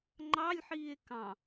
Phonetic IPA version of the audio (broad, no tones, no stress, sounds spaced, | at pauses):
ŋ͡ǃ ɑ lʲ ħ iː e̯ k ɑ̃